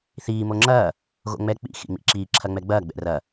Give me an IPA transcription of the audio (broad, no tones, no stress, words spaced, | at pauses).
θiː moŋ͡ǁɐː | ɣo̰ŋ͡mɛ k͡pḭ xḭŋ͡mḭǁiː ǁʰɐŋ͡mɛɡ͡bɐː ɡ͡bɛ̰rɐ